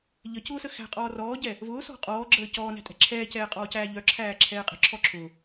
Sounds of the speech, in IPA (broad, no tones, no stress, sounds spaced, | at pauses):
ʎ ə c ʊː s ə x æ̤ qʼ ɔː r ɔː ɟ ɛ | v ʊː s ɔ̤ qʼ ɔː ɡ͡ǁ əː c ɔː n æ̤ tʼ ɛ̤ ǁʰ ɛː c ɛː qʼ ɔː c æː ʎ œ ǁʰ æː ǁʰ ɛː qʼ ə̤ ǁʰ ɔ ǁʰ ʊː